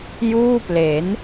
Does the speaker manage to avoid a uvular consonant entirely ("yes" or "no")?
yes